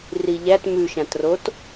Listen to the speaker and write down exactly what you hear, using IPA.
r i ʎ æ t m ʉ ʃ ã t r o t

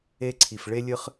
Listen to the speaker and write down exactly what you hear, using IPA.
e˧ ǀʰ i˨ f ɭ e˧ lʲ ɨ˧ χ

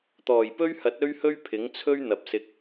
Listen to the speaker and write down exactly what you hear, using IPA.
t̪ ɔː˨˩ j p ɵ˥ ɥ h ɐ˨˥ t̚ ɵ˥ ɥ h ɵ˥ ɥ pʰ ɪ˨˥ ŋ t͡sʰ ɵ˥ ɥ n̪ ɐ˨ p̚ s ɪ˧ k̚

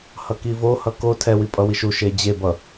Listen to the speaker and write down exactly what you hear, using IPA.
h ʌ k i v o h ʌ k o tʰ ɛ w i pʼ ʌ w i ʃ u ʃ e d͡ʑ e b ʌ

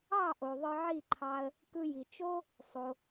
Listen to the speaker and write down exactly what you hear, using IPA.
ɑ˥˩ ʔ o˩ ðˤ ɯ˧ ʕ i˥˩ ǃʰ ɑ˧ ə̯ | k ɯ˧ j i˩ t͡ʃ o˥ | sˤ o˩

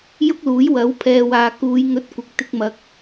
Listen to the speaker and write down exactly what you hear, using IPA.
j ʊ˥ k̚ l uː˨˥ j w ɐ˨˥ w pʰ ɛː˨ w aː˨ k uː˨˧ j ŋ ɵ˧ t̚ kʷ ɪ˨ k̚ t̪ ɪ˧ k̚ m ɐ˨˥ k̚

